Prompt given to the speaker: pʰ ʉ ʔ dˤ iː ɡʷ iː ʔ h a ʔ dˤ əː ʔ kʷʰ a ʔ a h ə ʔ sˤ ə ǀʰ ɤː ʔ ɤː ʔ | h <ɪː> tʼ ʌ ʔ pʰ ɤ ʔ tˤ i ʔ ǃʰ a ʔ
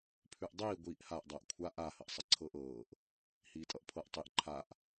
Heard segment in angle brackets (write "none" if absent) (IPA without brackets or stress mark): iː